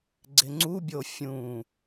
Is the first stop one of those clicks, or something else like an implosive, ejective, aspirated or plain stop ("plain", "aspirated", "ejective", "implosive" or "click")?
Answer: click